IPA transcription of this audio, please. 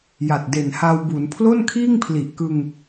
ja˨˩t̚de˨˩nha˧wbu˩˦n pʰlo˥˩nkʰiː˥˩ŋpʰli˨˩ʔkɯ˧ŋ

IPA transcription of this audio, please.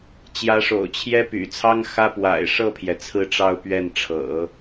t͡ɕjä˧˥ʂo̰˨˩ʊ̯t͡ɕʰjɛ˥ py̰˨˩t͡sʰɑ˥ŋxä˥ pwa̰˨˩ɪ̯ʂɤ˥˩pʰjɛ˩ t͡sʰɹ̩˥˧ʈ͡ʂɑ˥˧ʊ̯ pɥɛ˥˩nʈ͡ʂʰɤ̰˨˩˦

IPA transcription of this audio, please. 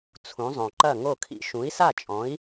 t͡sʰũ˩˥zˤõ˩ ǃɐ˥˩ŋo˥˩kʰḭ˥ ʃũ˩˥i̯sa˥˩t͡ʃʼɔ̃˩˥i̯

